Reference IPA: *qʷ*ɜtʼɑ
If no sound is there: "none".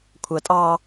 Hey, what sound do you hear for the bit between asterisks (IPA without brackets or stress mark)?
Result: kʷʰ